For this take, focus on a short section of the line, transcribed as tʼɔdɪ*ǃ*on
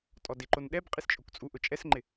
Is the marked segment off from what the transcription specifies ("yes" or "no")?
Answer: no